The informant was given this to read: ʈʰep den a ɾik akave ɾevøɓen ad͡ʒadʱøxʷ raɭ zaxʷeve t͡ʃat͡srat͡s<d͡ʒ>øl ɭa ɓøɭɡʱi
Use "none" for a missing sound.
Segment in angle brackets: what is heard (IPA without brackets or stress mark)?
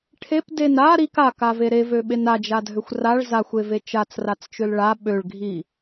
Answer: t͡ʃ